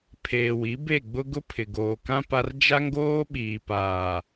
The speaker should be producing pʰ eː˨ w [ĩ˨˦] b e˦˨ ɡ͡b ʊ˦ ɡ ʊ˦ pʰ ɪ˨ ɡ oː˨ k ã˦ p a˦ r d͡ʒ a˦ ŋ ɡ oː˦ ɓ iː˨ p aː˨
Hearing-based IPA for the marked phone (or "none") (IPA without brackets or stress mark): i˨˦